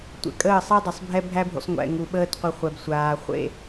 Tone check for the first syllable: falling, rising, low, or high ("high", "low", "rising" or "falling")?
low